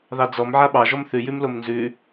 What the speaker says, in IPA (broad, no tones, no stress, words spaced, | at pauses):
ðɑd͡zɔm ʕaɓɑ ʒɔmθʉ jʉmlomnzʉ